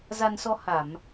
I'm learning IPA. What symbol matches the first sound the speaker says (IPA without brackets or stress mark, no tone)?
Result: z